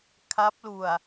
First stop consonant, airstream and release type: aspirated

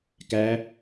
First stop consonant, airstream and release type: plain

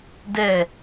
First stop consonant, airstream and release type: plain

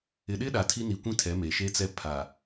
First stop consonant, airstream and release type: implosive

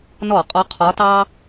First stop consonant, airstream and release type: ejective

